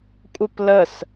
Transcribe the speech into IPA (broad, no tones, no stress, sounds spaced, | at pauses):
kʷʼ ɘ p l ə s